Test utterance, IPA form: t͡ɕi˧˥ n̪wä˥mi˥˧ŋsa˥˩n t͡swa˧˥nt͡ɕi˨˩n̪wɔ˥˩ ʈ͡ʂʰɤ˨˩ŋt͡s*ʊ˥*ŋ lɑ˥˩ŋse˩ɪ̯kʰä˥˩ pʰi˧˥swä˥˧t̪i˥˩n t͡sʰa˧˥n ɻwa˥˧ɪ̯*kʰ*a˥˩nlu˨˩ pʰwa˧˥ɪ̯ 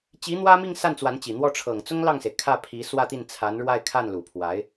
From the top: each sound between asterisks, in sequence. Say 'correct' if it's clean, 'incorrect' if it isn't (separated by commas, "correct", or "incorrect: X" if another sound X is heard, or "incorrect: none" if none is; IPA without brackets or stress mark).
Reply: correct, correct